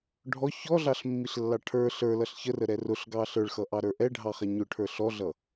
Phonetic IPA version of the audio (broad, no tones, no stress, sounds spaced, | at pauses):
ɖʱ ɔ ç ɔ ɮ ɑ ɬ mː i ɬ lː ɑ ʈʰ ə˞ ɬ ə˞ l ʌ ɬ ç ə r ə ɾ ɛ r ʊ ɬ ɡ ɑ ɬ ə˞ ɭ x ʌ ʔ ɑ ɾ ə˞ ʔ ɛ ɖʱ ɑ χ ɛ ɲ ʊ ʈʰ ə˞ ɬ ɔ ɮ ʌ